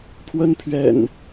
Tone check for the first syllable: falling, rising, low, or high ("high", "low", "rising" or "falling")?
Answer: high